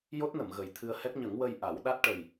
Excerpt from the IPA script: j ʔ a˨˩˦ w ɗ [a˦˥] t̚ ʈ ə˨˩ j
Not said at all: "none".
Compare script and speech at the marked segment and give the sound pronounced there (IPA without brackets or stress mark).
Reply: a˦˥